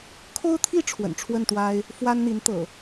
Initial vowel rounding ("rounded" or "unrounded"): rounded